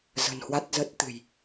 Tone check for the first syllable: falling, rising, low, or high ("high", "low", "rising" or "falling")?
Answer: low